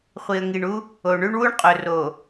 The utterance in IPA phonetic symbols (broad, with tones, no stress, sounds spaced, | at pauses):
χʷ i˨ ə̯ ŋ i˨ ɳ u˦ | o˨ ɳ ʉ˦ ɳ w u˦ ɳ qʼ ɵ˨ r o˨